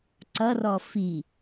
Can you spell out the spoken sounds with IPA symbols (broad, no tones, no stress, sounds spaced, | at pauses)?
ǀ ʌ r ɔ f i